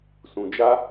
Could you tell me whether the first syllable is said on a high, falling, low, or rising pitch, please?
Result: low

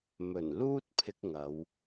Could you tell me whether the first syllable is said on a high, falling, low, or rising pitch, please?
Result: low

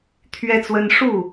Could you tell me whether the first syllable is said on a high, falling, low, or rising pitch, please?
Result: high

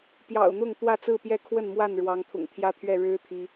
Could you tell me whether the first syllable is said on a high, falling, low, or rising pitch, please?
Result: low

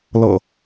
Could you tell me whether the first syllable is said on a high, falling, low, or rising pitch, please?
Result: low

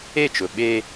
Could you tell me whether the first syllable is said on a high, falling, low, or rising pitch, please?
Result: falling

